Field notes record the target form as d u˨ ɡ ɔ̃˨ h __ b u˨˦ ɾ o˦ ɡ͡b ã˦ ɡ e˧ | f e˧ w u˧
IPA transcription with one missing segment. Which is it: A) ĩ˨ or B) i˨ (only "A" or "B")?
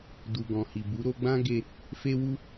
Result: B